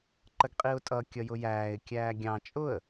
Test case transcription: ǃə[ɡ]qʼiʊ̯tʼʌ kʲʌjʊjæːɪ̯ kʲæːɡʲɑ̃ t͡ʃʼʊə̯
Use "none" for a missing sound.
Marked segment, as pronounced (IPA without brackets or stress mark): ɡ